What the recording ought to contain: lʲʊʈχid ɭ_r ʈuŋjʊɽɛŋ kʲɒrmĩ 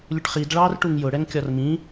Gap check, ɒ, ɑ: ɑ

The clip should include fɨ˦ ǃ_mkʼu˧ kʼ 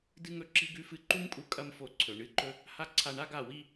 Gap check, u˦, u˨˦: u˦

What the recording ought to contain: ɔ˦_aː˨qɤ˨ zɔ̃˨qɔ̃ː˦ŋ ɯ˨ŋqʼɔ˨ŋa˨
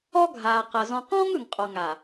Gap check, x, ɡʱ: ɡʱ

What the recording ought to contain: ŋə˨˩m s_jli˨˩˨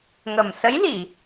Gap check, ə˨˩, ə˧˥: ə˧˥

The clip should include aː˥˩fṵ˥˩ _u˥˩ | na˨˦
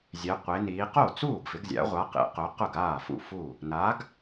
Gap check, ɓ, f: f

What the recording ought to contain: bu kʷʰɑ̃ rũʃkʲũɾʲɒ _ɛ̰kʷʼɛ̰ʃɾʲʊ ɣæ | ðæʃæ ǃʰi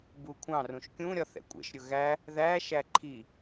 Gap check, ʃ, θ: θ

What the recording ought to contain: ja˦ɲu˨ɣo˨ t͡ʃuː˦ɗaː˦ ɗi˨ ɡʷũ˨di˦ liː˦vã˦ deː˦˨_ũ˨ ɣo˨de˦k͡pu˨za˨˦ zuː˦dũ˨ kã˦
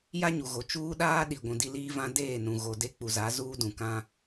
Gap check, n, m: n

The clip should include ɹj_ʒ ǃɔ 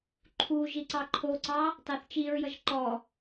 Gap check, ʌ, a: ʌ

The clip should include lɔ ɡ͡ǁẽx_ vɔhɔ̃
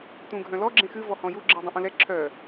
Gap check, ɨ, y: ɨ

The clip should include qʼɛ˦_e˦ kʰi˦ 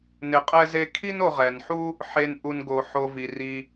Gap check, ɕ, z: z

